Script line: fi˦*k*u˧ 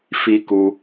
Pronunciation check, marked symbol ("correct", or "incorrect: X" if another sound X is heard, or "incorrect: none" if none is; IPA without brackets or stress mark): correct